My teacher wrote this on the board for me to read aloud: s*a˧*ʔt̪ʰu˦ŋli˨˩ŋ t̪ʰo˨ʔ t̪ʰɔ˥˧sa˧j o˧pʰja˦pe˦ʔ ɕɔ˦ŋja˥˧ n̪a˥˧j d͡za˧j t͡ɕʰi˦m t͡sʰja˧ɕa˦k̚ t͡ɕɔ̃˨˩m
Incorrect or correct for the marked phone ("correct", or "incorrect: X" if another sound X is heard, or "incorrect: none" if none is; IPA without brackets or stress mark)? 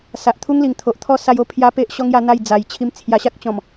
incorrect: a˨